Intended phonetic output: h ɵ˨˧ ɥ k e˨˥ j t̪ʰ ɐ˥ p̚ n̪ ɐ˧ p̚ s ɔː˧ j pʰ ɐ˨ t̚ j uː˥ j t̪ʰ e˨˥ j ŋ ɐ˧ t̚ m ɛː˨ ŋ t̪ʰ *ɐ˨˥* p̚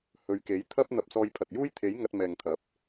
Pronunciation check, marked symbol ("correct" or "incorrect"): correct